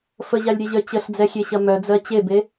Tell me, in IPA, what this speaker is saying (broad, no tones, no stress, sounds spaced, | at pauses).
f ə ʑ a lʲ ɾʲ ɐ ʑ œ t͡ɕ ə ɬ d͡z ɛ xʲ e ɕ ɐ m œ d͡z ɜ t͡ɕ e b e